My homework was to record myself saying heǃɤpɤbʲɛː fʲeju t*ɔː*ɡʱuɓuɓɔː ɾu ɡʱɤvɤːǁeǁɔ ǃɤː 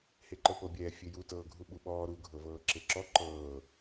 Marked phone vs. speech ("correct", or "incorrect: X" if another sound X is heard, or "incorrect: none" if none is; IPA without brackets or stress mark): incorrect: ɤː